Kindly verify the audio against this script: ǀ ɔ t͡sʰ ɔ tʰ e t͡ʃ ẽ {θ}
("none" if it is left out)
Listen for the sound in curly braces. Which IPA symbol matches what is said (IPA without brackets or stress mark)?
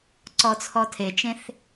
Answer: θ